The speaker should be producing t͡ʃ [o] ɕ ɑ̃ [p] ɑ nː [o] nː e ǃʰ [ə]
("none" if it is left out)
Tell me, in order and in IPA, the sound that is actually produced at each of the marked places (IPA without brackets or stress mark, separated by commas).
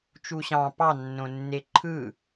u, p, õ, ɯ